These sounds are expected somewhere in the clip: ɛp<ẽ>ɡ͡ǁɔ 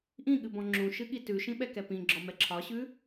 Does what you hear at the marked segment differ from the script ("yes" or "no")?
yes